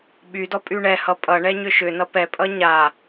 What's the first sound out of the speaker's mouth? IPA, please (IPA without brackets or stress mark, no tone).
ɓ